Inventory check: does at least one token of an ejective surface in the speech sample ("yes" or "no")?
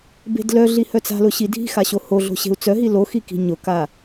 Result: no